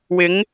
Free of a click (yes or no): yes